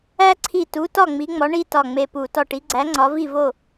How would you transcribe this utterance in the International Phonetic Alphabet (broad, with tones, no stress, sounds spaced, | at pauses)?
æ˦ ǀʰ i˧˩ t u˨˦ t ɒ˥˨ ŋ͡m i˨˦ ŋ͡m ɒ˨˦ ɳ i˦ t ɒ˧˩ ŋ͡m e˧˩ p u˧˩˧ t ɒ˧˩ ʈ i˨˦ ɡ͡ǀ æ˨˦ ŋ͡ǀ ɒ˨˦ v i˥˨ v o˥˨